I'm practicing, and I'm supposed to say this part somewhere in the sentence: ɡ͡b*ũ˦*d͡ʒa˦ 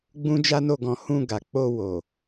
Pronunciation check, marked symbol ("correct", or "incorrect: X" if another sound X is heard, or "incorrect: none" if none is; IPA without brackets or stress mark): correct